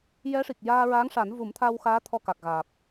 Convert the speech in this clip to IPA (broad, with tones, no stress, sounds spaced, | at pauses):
j ɛ˧˥ ʂ i˨˩ k̚ j aː˧ ɹ aː˧˥ ŋ ʂ a˨˩˦ n v u˨˩˦ m t̪ʰ a˧ w x aː˧˥ t̪ʰ ɔ˧ k a˨˩ k̚ ɣ aː˨˩ p̚